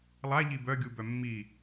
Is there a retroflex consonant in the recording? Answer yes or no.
no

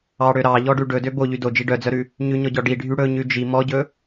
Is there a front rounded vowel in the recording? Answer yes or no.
yes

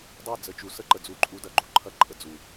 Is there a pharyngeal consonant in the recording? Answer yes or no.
no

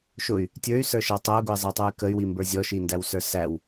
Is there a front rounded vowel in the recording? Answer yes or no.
yes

